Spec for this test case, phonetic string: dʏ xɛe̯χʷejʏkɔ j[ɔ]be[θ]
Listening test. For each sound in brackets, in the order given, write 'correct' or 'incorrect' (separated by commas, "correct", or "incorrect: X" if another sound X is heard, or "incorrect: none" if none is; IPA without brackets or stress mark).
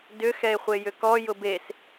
incorrect: ʊ, incorrect: s